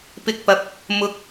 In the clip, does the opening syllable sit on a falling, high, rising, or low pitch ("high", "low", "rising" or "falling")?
rising